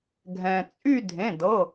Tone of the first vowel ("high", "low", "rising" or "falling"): low